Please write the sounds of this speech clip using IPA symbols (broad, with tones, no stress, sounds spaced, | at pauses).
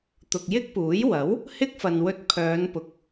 t̪ ʊ˨ k̚ j ɪ˥ k̚ p uː˨˥ j w ɐ˨˥ w | h ɪ˥ k̚ f ɐ˨ n w ɵ˧ t̚ pʰ œː˨˧ n p ʊ˨ k̚